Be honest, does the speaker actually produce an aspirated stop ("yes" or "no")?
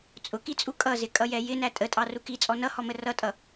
no